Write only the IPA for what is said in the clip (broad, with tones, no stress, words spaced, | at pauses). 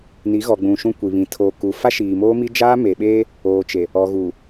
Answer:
ni˨˦ɣɔ˨ɡ͡bũ˨ ʃũ˦kʷi˨βĩ˨ tʰoː˨ku˨ fa˦ʃiː˨moː˦mi˦ d͡ʒaː˦me˨ɓeː˦ | oː˨t͡ʃe˨ | ɔ˨ɣu˨